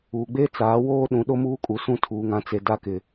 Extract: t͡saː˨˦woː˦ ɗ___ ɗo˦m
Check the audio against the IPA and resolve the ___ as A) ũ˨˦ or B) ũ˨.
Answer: A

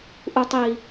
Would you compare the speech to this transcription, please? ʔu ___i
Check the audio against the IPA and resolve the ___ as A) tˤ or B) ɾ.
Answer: A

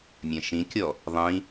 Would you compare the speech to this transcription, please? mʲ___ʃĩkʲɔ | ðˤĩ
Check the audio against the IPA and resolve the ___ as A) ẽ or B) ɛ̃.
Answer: B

